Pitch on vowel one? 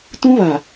high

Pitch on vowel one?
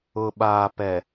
low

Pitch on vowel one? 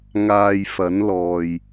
low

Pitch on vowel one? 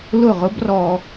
falling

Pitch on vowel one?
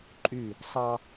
falling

